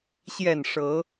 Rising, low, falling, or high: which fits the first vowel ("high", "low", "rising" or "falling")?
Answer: low